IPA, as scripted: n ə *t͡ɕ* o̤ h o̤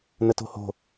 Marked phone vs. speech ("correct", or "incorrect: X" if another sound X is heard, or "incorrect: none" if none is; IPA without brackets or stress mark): incorrect: t